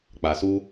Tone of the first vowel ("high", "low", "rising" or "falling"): low